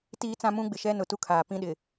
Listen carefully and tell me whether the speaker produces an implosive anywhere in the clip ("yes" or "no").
yes